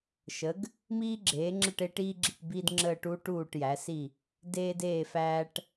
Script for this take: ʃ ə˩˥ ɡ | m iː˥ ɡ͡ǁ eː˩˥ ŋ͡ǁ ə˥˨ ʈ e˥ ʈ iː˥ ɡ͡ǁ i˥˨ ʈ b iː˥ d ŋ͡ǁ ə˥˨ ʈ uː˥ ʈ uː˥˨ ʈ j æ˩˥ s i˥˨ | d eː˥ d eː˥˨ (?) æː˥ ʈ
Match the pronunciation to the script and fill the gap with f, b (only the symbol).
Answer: f